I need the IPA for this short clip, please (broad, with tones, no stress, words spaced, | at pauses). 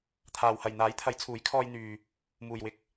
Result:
t̪ʰaː˨whɐ˨j n̪aː˨˥jt̪ʰɐ˨˥jt͡sʰuː˨˥j kʰɔː˧jn̪yː˨ | muː˨jwɪ˧k̚